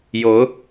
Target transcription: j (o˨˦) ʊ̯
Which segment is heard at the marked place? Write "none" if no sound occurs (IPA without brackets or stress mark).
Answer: o˨˦